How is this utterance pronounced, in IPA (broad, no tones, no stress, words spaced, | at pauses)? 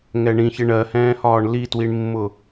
ŋɛɳĩç ɪɳɜhɛ̃ːhɒːɳ litwiɳmːʊ